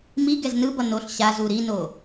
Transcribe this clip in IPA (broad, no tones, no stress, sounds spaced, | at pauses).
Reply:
m i ɡ ɛ z n ɯ b ʌ n o ɬ ɕ a z u ɾ i n o